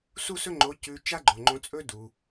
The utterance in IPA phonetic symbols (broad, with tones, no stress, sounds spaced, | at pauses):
s u˥ s ɵ˥ ŋ͡ǃ o˧˥ c ʉ˧ t͡ʃ a˥ ɡ͡ǃ o˩ ŋ͡ǃ õ˧ t͡sʼ ɵ˥ d u˩